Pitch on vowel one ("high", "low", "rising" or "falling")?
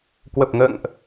low